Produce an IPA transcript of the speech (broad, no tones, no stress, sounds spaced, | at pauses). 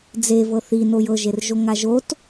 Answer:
d͡z e v ɤ θ i n o j ɤ ʒ e r ʒ o ŋ a ʒ o t